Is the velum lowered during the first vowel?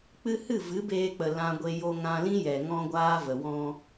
no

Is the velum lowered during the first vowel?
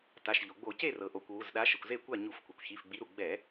no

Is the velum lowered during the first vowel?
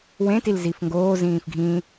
yes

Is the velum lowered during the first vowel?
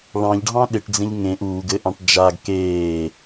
yes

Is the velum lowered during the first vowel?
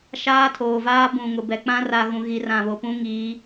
no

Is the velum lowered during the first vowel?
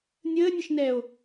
no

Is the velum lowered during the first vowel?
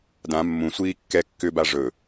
yes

